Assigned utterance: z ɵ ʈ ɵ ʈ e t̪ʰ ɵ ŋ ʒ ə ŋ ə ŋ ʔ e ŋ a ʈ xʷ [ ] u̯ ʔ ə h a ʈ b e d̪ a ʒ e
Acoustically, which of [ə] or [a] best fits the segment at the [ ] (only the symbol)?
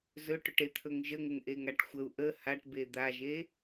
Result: ə